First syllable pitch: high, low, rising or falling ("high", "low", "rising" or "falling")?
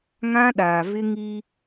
high